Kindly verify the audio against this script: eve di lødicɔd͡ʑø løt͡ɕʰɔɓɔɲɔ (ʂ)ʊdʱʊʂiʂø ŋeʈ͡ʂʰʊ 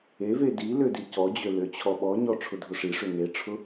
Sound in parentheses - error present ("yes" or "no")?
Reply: yes